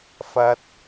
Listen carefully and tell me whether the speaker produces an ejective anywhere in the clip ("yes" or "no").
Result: no